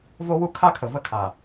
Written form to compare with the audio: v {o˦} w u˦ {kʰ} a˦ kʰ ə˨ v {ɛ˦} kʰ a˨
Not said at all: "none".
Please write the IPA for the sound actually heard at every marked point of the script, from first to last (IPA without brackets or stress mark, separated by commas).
o˦, kʰ, ə˦